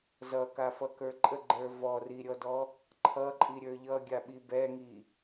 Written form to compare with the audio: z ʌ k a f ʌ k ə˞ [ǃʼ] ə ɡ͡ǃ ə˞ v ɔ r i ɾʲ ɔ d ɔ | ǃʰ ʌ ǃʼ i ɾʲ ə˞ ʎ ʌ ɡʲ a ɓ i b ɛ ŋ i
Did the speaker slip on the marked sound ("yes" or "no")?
no